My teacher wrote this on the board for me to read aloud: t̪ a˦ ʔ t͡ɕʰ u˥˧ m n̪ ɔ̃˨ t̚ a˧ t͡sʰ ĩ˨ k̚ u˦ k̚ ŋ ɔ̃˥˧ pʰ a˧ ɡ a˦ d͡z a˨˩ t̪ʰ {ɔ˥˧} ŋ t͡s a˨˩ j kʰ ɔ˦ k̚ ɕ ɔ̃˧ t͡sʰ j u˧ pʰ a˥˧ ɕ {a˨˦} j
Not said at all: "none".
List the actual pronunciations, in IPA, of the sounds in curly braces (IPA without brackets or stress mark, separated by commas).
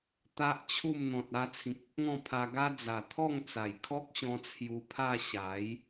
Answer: ɔ˥˧, a˨˦